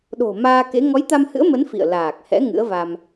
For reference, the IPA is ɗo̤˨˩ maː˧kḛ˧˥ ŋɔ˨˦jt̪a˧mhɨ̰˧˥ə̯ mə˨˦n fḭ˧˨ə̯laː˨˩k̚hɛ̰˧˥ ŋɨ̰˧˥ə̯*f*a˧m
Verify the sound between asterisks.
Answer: incorrect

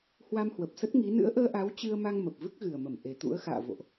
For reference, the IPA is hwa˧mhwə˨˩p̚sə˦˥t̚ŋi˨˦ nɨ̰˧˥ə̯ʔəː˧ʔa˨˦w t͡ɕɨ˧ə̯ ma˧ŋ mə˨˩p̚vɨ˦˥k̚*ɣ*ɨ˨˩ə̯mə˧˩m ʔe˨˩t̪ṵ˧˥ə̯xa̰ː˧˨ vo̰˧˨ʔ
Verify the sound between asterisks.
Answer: correct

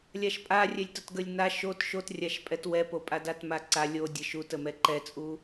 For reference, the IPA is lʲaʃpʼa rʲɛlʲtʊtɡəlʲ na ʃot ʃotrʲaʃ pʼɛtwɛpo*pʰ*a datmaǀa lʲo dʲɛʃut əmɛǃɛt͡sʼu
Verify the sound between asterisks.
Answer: incorrect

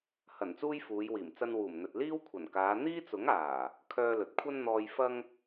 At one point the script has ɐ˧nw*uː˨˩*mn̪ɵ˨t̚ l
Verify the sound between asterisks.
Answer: correct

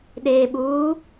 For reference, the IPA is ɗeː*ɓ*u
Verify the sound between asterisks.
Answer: correct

